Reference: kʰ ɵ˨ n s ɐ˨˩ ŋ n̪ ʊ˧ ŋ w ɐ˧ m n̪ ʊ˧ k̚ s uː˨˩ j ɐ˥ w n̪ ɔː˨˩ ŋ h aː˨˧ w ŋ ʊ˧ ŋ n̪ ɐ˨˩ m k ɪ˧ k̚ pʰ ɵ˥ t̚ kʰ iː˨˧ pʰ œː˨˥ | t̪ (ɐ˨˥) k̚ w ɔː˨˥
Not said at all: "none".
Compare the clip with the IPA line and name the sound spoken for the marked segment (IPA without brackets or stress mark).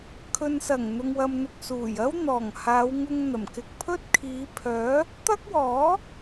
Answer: ɐ˥